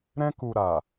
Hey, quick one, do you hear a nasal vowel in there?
yes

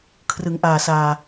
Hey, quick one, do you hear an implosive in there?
no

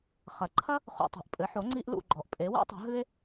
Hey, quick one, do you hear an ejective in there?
yes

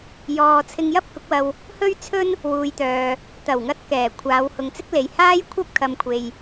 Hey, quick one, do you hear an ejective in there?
no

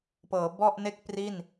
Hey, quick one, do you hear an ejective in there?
no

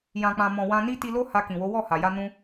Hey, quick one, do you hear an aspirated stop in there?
no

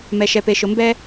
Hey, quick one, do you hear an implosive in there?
no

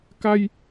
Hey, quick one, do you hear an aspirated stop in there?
no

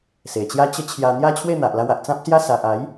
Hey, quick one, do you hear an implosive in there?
no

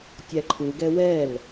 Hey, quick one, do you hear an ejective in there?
no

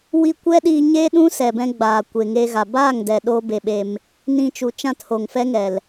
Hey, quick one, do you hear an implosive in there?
yes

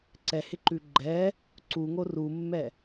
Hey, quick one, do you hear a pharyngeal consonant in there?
no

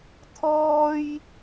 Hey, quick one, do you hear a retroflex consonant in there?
no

